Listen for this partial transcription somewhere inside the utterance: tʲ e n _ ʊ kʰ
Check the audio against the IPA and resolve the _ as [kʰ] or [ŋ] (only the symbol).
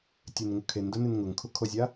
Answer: ŋ